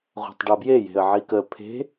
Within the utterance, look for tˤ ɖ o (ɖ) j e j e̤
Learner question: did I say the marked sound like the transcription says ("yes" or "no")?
no